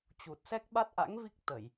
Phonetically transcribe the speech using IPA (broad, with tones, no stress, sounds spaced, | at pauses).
t͡ɕ u˨˩ t̚ s ɛ˦˥ k̚ ɓ a˦˥ t̚ ʔ a̰˧˥ ŋ v i˦˥ k̚ t̪ ə˧˩˨ j